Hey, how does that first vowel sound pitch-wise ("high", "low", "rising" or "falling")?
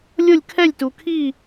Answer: falling